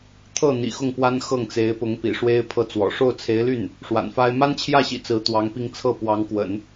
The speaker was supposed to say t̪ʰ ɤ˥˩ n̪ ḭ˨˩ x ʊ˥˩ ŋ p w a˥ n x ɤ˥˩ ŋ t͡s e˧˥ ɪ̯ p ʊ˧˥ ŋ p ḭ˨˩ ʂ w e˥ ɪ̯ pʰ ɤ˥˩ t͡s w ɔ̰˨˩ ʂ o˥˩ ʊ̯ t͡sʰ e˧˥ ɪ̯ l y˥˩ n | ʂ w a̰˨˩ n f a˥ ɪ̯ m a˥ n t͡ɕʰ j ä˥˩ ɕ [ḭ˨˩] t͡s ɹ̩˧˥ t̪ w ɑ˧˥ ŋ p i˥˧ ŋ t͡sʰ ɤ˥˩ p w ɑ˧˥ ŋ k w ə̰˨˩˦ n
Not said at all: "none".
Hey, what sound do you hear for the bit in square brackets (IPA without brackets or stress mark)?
ḭ˨˩